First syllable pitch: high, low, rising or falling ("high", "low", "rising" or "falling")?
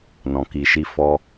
low